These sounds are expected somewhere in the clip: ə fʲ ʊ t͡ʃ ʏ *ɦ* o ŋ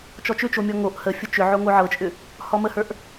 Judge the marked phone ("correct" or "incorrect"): incorrect